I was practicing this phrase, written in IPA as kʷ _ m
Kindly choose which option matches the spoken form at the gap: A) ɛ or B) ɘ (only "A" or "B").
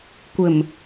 B